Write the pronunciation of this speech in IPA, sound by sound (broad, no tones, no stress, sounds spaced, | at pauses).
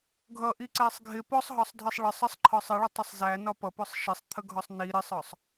ɡʱ ʌ ʔ i ǀ æ sˤ ɡʱ ɪ p ɔ sˤ ɦ ɒ sˤ dʱ ɜ sˤ ɭ ə sˤ ə sˤ ǃʰ ɒ sˤ ɪ ɭ ʊ tˤ ə sˤ z æ n ɒ p ʌ p ʊ sˤ ʃ ɪ sˤ t̪ʰ ə ɡʱ ɒ sˤ n i ɾ ɪ sˤ ɒ sˤ